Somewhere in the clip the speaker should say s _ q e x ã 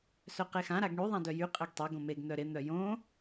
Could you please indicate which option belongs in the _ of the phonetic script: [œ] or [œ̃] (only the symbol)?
œ